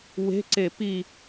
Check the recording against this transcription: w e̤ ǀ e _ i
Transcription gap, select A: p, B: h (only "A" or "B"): A